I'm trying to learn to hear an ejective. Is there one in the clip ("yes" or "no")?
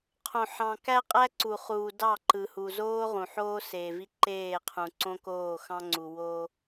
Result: yes